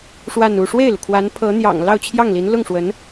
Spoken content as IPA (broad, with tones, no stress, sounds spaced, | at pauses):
ʂ w a˥˧ n u˥˧ ʂ w e˥˩ ɪ̯ l u˩ kʰ w a˧˥ n pʰ ɤ˧˥ n̪ j ɑ̰˨˩ ŋ l ɑ˥˧ ʊ̯ t͡ɕʰ j ɑ˥˩ ŋ l i˧˥ n l ʊ˥˩ ŋ ʂ w ə˧˥ n